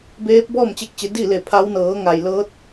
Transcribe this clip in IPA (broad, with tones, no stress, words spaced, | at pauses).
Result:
beː˧˥p̚ bɔː˥˨mt͡ɕe˧k̚t͡ɕe˩˧ di˥˨le˧˩pʰa˧˥w nɤː˩˧ŋa˩jlɤː˧˥t̚